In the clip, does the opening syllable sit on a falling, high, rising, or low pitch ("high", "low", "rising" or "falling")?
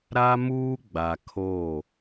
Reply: high